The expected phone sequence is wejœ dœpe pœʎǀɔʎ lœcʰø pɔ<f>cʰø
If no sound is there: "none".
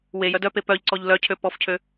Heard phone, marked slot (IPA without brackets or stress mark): f